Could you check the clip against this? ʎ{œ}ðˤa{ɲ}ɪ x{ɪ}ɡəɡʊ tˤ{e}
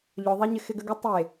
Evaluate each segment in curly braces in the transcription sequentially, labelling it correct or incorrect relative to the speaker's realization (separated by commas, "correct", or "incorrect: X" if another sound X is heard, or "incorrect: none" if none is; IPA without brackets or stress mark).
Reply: correct, correct, correct, correct